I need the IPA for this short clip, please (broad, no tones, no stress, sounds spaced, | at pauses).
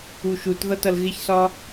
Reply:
u ʃ u t ð ʌ t ʌ l ɣ ɪ ç s ɒ